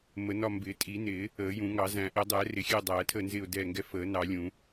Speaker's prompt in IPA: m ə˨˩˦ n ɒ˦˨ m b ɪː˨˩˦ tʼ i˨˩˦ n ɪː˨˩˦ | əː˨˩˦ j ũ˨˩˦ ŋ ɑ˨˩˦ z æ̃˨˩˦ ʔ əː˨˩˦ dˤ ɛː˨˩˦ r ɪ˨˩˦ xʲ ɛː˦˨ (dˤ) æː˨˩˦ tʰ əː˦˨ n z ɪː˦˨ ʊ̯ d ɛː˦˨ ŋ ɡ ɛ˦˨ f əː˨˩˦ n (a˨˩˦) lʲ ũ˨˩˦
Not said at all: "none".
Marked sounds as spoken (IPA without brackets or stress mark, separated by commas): dˤ, ɑ˨˩˦